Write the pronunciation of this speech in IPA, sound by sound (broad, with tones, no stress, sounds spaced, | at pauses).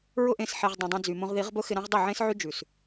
ɹ ʊ˧ ʔ ẽ˨ s ħ e˨ ʁ dˤ õ˨ dˤ ɛ̃˧ d͡z y˨ m õ˧ ʁ ð i˨˦ ʁ b ʊ˦ x ɪ˧ ɾ ã˦ ʁ dˤ ɪ˦˨ ʕ ẽ˦ s ʕ y˦ d͡ʒ ʉ˨ s